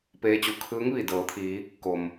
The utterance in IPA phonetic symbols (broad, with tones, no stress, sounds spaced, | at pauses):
p eː˧˥ t͡ɕ u˩˧ kʰ ɯː˧˥ ŋ ʋ i˧˩ d ɤː˩˧ t̪ʰ iː˩˧ | k o˩ m